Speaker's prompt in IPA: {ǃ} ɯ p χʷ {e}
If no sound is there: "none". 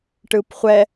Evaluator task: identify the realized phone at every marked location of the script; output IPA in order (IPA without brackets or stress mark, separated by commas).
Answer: ʈ, ɛ